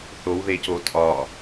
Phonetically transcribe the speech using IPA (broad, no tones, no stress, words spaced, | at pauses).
θowðeco tʼɒ